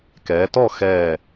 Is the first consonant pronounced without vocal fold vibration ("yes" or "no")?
yes